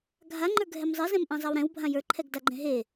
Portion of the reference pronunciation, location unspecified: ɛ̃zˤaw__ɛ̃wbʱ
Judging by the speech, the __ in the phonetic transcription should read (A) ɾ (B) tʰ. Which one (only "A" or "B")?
A